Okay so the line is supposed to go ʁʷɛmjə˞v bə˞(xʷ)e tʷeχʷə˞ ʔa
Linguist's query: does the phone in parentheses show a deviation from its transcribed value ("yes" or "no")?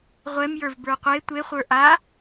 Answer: yes